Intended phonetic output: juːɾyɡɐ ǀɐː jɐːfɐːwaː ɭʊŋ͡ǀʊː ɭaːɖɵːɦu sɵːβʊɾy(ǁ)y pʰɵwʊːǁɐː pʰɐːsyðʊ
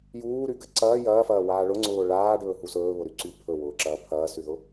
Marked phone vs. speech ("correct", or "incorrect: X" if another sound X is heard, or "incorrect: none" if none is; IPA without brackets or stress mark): incorrect: ǀ